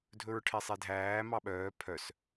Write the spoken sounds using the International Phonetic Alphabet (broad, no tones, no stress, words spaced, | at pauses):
dʱɵɹʈʰesˤedʱæː mɑɓœː pʰœs